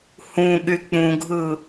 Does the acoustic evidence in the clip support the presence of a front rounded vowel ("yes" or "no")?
yes